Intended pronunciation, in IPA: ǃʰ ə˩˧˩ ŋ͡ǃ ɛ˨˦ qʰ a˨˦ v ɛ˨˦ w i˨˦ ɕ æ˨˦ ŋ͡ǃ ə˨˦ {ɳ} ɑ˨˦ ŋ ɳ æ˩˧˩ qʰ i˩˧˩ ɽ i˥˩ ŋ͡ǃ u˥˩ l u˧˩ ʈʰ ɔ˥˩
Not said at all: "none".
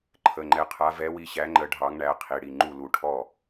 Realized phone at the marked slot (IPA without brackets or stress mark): ɖʱ